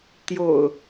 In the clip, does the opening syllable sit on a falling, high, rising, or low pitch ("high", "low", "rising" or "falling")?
low